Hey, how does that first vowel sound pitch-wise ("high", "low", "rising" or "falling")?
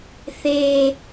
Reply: low